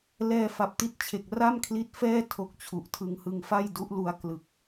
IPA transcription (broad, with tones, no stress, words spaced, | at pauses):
lɛː˧fa˨˩p̚ti˦˥t̚t͡ɕʰe˨˩k̚ ra˥˩mkʰli˦˥t̚fɛː˥˩ tʰo˦˥k̚t͡ɕʰu˨˩ʔtʰɯ˧ŋ hɯ˧ŋfa˥˩j du˦˥ʔlu˧a̯ klɯ˨˩k̚